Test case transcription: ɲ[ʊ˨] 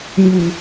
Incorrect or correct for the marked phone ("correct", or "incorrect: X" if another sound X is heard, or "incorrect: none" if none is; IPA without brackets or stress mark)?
incorrect: u˨